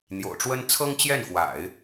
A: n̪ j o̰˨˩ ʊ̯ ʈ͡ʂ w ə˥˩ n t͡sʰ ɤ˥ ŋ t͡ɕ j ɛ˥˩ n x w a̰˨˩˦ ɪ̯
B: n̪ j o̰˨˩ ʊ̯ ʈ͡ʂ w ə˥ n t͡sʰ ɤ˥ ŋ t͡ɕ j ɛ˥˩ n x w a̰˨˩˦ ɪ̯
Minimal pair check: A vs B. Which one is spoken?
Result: B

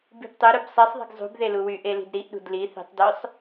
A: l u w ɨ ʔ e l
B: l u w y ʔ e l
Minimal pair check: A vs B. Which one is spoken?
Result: B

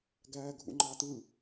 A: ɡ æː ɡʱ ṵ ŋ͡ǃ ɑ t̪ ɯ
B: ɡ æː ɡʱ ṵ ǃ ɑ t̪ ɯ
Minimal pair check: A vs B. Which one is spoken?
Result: A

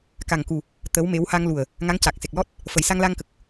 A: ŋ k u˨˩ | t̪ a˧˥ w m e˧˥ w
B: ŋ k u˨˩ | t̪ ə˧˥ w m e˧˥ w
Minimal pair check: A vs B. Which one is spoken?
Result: B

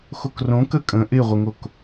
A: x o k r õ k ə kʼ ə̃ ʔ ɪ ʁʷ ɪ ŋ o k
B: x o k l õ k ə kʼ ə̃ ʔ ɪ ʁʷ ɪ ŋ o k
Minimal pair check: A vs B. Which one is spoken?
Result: A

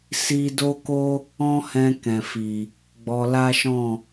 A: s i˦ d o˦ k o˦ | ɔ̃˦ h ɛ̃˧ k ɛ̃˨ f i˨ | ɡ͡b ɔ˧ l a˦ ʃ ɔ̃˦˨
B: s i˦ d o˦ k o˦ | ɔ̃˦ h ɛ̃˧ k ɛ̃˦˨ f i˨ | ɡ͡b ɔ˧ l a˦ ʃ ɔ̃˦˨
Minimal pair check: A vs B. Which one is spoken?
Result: A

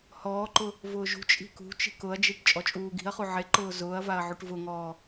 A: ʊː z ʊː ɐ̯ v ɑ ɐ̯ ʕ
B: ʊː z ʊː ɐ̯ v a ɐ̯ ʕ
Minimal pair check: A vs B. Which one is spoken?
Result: B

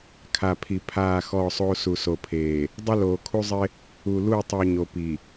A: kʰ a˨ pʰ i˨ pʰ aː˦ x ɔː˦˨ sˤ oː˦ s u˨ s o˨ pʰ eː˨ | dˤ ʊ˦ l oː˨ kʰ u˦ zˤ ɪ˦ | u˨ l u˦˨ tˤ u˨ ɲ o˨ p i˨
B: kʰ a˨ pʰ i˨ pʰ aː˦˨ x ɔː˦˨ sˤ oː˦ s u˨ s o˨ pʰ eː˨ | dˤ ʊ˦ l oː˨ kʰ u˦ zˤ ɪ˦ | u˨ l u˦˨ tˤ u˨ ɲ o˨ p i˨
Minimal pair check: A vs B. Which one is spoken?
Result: B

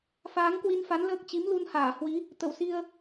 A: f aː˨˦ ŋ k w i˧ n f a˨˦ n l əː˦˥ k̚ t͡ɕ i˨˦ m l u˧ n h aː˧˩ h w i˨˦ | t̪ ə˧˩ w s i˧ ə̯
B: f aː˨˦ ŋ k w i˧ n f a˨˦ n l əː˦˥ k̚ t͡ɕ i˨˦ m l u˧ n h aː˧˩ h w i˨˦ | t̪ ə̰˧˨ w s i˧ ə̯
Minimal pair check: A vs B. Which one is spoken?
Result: A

